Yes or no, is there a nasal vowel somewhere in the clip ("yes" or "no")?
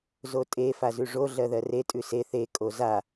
no